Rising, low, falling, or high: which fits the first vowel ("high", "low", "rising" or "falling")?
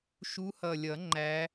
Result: rising